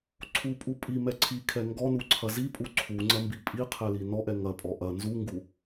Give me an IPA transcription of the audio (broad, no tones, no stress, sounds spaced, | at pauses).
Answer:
ǀʰ u pʼ u pʼ i m ɛ ǀʰ i kʰ ɛ ŋ ɡ ɔ n u ǀʰ ɐ z i pʼ u ǀʰ u ŋ͡ǀ ɐ m b i pʼ i qʰ ɛ l i n ɔ ʔ ɛ ŋ ɐ pʼ ɔ ʔ ɐ n z u ŋ ɡ u